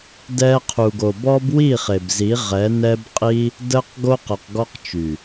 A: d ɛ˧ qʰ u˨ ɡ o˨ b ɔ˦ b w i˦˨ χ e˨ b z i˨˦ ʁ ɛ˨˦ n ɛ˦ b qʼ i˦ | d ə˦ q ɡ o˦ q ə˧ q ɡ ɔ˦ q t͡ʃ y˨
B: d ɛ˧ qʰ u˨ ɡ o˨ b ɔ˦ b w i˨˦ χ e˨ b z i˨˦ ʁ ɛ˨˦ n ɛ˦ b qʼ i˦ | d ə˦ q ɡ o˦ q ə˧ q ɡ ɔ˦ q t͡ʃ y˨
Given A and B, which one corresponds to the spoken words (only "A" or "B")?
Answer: A